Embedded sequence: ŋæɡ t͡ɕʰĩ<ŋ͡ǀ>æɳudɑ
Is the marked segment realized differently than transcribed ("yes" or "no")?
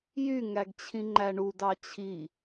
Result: yes